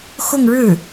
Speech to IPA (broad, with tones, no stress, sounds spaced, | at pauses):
x ʊ˥˧ ŋ ɻ ɻ̩˥˩